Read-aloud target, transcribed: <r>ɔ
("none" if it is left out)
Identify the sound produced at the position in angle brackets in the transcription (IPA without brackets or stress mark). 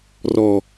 r